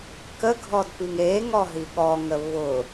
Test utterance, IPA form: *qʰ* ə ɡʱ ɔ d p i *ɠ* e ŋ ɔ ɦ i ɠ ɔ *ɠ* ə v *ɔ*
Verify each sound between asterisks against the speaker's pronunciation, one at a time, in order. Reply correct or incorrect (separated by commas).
incorrect, incorrect, incorrect, incorrect